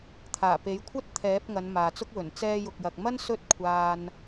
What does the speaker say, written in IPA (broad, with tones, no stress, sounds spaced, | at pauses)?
t̪ʰ aː˨˩ p e˨˥ j kʷʰ ɐ˥ t̚ t̪ʰ ɛː˨˥ p̚ ŋ ɐ˨˧ n m aː˨ t͡s ʊ˥ k̚ w ɵ˨˩ n t͡s ɛː˧ j ʊ˨ k̚ j ɐ˨ k̚ m ɐ˥ n s ɵ˥ t̚ kʷʰ aː˧ n